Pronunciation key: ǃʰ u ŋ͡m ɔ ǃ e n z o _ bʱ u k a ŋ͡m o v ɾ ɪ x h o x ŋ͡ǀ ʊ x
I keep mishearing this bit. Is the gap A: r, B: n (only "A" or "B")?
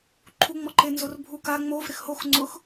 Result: A